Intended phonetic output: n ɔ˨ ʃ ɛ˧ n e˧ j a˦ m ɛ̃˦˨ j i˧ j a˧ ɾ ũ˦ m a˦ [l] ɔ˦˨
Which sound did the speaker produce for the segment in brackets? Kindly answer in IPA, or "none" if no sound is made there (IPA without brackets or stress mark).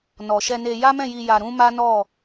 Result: n